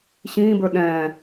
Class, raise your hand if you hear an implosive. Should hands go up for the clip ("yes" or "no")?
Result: yes